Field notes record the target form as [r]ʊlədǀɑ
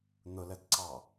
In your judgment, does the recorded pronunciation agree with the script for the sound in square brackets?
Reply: no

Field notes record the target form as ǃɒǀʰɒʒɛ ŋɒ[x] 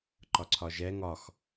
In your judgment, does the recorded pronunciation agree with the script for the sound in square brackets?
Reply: yes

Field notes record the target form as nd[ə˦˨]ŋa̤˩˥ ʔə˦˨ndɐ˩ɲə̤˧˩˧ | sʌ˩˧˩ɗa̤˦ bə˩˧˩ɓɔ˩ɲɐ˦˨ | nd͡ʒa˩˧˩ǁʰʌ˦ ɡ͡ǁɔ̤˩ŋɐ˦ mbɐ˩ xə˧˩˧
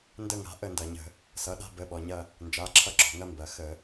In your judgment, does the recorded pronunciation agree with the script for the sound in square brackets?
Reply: yes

